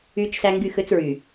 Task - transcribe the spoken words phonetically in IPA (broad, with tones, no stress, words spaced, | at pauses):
yː˦t͡ʃsæ˦ ŋɡy˦˨xø˦t͡sɹy˨